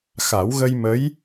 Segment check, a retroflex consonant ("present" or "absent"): absent